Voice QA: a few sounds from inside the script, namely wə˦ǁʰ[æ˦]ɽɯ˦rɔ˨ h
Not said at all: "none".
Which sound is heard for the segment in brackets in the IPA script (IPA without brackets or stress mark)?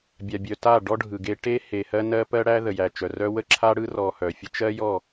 a˦